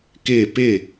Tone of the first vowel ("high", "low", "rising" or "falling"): falling